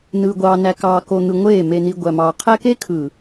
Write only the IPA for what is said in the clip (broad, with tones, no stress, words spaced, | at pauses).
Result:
nɯː˨ɡʷɑː˨næ˨kɑː˨ ko˨n̪ɯ˨ ŋʷeː˦˨ me˨ni˨ ɡʷæ˨mɑː˨qʰæ˦ ke˦kʰɯ˨